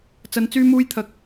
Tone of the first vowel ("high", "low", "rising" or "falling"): low